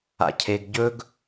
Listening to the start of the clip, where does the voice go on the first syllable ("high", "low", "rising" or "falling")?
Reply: high